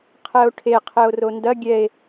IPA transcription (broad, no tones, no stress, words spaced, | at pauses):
qʰɛo̯ʈʰe qʰɛo̯rondɐ ɡʲɛe̯